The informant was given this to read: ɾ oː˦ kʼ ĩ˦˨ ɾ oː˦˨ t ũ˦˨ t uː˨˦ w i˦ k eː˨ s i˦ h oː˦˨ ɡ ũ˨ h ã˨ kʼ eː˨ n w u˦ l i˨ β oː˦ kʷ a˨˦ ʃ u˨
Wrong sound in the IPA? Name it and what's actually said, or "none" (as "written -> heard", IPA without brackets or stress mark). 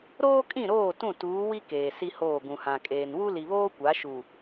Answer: none